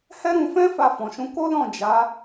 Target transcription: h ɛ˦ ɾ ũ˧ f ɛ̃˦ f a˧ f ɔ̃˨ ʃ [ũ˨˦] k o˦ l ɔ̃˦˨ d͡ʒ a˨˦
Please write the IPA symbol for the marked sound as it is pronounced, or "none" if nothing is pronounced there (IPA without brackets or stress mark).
ũ˨˦